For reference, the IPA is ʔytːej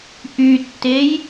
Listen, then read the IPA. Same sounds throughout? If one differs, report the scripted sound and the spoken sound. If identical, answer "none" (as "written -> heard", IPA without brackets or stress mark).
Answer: none